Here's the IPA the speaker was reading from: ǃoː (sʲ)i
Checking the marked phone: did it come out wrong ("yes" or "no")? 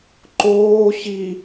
yes